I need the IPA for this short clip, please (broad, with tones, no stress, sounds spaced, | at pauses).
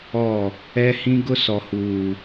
ɔ˦˨ | ɛ˦ h ĩ˦ ɡ ʊ˦ s ɔ˨ h uː˨